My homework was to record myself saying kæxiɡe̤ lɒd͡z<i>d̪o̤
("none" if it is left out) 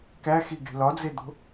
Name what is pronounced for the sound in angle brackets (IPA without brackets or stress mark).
e